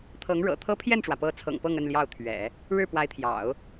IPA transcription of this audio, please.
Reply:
t̪ʰ ɤ˧˥ ŋ ɻ ɤ̰˨˩ t̪ʰ ɤ˥ pʰ j ɛ˥˩ n ʈ͡ʂ w ä˩ p ɤ˧˥ t͡sʰ ɤ̰˨˩ ŋ p ɤ˥˧ ŋ ə˥˧ n l j ɑ˥˩ ʊ̯ t̪ʰ ɥ ɛ̰˨˩˦ | ɻ ɻ̩˥˩ p w a˧˥ ɪ̯ t̪ʰ j ɑ̰˨˩˦ ʊ̯

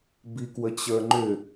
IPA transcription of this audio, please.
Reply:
b i k w ə t͡ɕ ə˞ ŋ͡ǃ ʏ

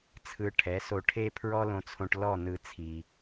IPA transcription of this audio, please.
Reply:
t͡sʰ ɯ˧ ʈʰ ɛ˩˥ s o˧ ʈʰ e˥ pʰ ɹ ɔ˥ l õ˧ t͡sʰ õ˧ ʈ l ɔ˥˩ n ɯ˧ t͡sʰ i˩

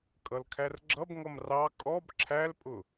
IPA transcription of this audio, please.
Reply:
kʼ ʌ l kʰ æ r ɡ͡ǁ ʌ b ŋ ʌ m r ɑ kʼ ɔ b ǁʰ æ l pʼ ʊ

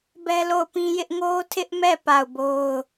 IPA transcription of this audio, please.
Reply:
b ɛ˦ l o˦˨ ʊ̯ p ĩ˦ j ɪ˦ ʔ ŋ o˦ tʰ ɪ˦ ʔ m ɛ˦˨ p a˦˨ ʊ̯ b o˦ ʊ̯

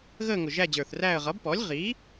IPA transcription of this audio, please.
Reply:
ɣ əː˦˨ ŋ ʊ˨˩ ʒ æ˦˨ d͡ʑ ə˞˨˩ θ r æː˦˨ ə̯ ʁ ʌː˩˥ b p ɔː˩˥ lʲ ʁ iː˩˥

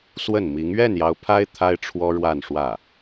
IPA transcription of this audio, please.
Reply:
s w ə˥˩ n m i˧˥ ŋ ɥ ɛ˥˩ n j ɑ˧˥ ʊ̯ pʰ a˥ ɪ̯ t̪ʰ a˥ ɪ̯ ʈ͡ʂʰ w ɔ˥ ɻ w a˥˧ n ʂ w ä˥˩

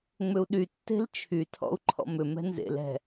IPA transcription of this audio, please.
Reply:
ŋ͡m ʏ u̯ ɗ y tː e̤ l t͡ʃʰ y tʰ ɔ̰ u̯ ǃʰ ɔ̰ m ʏ m ɛ̤ n z ḛ l ɛ̤

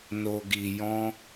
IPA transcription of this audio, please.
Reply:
n o˨ ɡ i˨ j ɔ̃˧

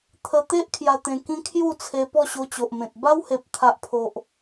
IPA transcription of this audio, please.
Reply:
t̪ʰ ə˧ t̪ e˦ ʔ kʰ j a˧ t̪ ẽ˧ k ĩ˦ kʰ j u˥˧ t͡sʰ e˧ p ɔ˥˧ ɕ o˧ t͡ɕ o˨ ʔ m ẽ˨ t̚ b a˦ w h e˨ p̚ t̪ʰ a˨ ʔ pʰ o˨ ʔ

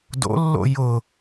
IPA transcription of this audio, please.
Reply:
d o̰ lː o̰ j ʊ

